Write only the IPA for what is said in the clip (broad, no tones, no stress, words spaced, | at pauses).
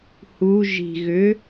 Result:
hu ʒi̤ ɣʏ